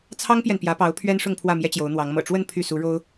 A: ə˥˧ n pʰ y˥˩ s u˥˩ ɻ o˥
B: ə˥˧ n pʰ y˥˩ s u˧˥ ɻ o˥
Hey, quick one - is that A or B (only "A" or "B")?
B